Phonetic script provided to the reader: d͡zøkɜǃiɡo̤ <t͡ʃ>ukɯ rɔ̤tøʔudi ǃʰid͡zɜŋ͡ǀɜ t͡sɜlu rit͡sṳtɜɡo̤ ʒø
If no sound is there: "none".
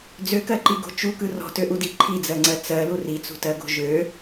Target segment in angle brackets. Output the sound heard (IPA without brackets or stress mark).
t͡ʃ